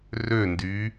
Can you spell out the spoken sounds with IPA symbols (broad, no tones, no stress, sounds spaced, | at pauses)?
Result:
r ø n d y